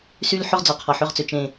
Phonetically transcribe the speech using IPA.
s y˦ l ħ ɵ˦ ʁ d͡z ɔ˨ qʰ ɔ˨ ħ ʏ˦˨ ʁ t͡s ʏ˨ t͡ʃ ẽ˨

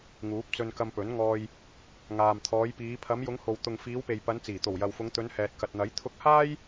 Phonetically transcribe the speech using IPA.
ŋ uː˨˥ p̚ t͡s ɵ˧ n k ɐ˧ m p ɵ˨˥ n ŋ ɔː˧ j | ŋ aː˨ m t̪ʰ ɔː˨˧ j p iː˨˧ pʰ ɐ˨˧ m j ʊ˨˧ ŋ h o˨ w t̪ ʊ˨ ŋ f iː˨˧ w p e˨ j p ɐ˨˧ n t͡s iː˨˩ t̪ o˨˩ w j ɐ˨ w f ʊ˨˧ ŋ t̪ ɵ˨˧ n h ɛː˨ t̚ k ɐ˨ t̚ n̪ ɐ˨˥ j t̪ʰ ʊ˧ k̚ h aː˥ j

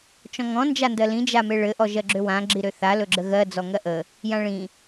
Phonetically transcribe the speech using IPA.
t͡ʃ ɔ̃ ŋ ɔ̃ n d͡ʒ a n d ɜ l ĩ d͡ʒ a m e ɭ ɘ ʔ ɔ ʒ ɜ ɡ͡ǁ ø w ã ɡ͡ǁ i ɾ ø θ a l ɵ ɡ͡ǁ ə ɣ ɜ d͡z ɔ ŋ ɜ ʔ ə | j ã ɭ ĩ

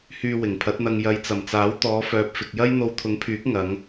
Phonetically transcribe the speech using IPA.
h yː˨ w ɪ˨˩ ŋ pʰ ɐ˨˥ t̚ n̪ ɐ˧ ŋ j ɐ˨˧ j t͡s ɐ˨˩ m t͡s aː˨˥ w t̪ ɔː˨˧ f œː˨ p̚ f ɪ˨ k̚ j ɐ˥ j n̪ o˧ w t̪ʰ ʊ˨˥ ŋ pʰ yː˨˥ k̚ ŋ ɐ˨˧ ŋ

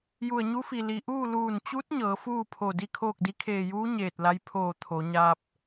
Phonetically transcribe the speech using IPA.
j u˧˩ ə̯ ɲ u˧˥ f i˩ l i˩ ʔ uː˥˨ l uː˧˩ n t͡ɕ u˧˥ t̚ ɲ ɤː˩˧ f uː˥˨ pʰ o˧˩ d i˥˨ kʰ oː˥˨ k̚ d i˧˥ kʰ eː˧˩ j uː˧˥ ɲ eː˧˩ t̚ l a˧˥ j pʰ oː˧˩ t̪ʰ o˩˧ ɲ a˧ p̚

